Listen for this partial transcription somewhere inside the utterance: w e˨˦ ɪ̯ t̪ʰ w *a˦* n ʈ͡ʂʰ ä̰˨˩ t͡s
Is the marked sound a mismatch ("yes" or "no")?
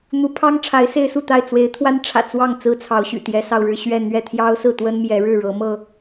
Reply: no